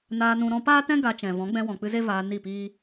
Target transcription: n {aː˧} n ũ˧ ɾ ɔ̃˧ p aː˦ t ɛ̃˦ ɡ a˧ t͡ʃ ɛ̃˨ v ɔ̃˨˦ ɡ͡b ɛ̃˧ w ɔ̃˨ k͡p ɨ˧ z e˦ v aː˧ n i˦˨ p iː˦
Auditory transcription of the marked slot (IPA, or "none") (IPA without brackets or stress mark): aː˧